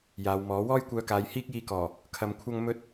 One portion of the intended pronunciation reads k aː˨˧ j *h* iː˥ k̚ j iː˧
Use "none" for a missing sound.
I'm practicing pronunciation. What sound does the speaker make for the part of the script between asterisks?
h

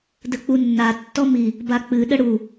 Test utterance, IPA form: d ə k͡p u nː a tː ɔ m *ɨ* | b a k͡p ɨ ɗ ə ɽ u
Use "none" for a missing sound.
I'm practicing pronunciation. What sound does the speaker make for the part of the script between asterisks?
i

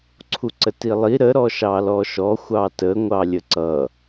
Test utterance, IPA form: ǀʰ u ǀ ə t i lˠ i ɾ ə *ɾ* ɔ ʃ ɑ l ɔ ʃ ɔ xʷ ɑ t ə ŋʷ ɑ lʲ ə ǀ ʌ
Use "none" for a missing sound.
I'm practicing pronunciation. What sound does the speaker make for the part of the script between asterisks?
ɾ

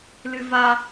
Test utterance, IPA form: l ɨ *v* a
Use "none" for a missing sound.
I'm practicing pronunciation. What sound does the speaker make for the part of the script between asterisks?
v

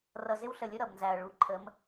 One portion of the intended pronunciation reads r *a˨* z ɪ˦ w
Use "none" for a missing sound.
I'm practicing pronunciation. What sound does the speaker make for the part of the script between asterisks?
ʌ˨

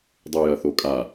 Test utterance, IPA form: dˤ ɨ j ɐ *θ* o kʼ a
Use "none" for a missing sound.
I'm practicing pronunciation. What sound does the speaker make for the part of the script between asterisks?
θ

